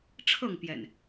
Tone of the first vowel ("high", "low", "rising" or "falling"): falling